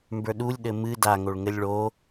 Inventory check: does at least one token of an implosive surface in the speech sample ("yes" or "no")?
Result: yes